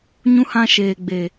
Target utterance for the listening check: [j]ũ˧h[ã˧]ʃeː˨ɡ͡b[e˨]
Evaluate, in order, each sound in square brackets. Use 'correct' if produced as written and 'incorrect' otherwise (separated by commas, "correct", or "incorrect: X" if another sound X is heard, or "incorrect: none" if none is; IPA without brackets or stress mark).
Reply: incorrect: ɲ, correct, correct